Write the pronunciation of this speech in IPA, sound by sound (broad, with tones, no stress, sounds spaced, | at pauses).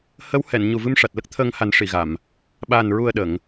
h ə˧˥ w h ɛ˨˩˨ n ɲ u˨˩ v ɨ˧ m ʂ a˨˩ t̚ l ə˦˥ k̚ t̪ʰ əː˧ ŋ h a˨˩˦ n ʂ i˨˩˨ ɣ a˨˩˨ m | ɓ aː˨˩ n ɹ u˨˩ ə̯ ɗ ə˨˩˨ ŋ